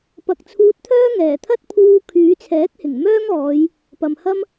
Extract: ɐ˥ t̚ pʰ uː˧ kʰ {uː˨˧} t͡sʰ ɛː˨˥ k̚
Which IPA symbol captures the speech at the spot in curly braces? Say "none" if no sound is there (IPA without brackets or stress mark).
yː˨˧